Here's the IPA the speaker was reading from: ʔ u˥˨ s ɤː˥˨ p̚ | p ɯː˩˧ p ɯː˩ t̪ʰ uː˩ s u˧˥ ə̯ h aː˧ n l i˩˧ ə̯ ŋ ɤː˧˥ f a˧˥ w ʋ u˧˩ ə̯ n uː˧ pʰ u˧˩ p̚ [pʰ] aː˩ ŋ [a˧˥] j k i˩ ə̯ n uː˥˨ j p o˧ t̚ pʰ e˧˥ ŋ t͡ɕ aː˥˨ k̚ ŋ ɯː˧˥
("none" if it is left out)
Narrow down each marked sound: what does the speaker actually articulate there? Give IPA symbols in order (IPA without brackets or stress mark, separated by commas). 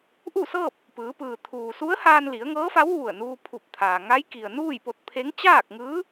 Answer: t̪ʰ, a˧˥